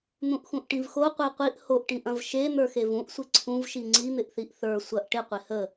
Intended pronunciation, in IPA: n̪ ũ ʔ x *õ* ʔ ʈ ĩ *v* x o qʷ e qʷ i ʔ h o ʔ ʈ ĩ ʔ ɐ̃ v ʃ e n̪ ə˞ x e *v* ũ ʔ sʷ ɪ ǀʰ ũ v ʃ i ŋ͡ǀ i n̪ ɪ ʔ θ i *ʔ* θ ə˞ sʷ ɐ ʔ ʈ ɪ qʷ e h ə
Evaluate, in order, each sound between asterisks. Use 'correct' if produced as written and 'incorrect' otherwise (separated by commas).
incorrect, correct, correct, correct